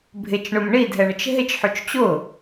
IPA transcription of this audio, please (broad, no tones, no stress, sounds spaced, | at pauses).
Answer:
bʱ ɪ t͡ʃ ɳ ʊ m ɳ i dʱ ɛ ɳ ə t͡ʃ ɦ ɪ t͡ʃ ħ u t͡ʃ t͡ɕ ʊ